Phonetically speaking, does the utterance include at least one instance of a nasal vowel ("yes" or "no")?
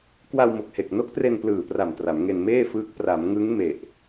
no